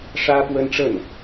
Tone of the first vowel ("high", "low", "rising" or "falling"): high